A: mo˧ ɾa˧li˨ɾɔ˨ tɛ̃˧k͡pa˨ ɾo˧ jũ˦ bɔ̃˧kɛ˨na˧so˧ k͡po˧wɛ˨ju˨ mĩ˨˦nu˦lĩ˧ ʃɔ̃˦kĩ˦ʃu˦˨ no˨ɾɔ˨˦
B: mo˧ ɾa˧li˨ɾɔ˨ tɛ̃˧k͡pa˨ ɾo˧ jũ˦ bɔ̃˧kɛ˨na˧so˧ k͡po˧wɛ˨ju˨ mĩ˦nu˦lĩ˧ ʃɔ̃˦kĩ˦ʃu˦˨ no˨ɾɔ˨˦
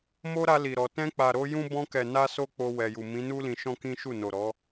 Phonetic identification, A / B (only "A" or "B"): A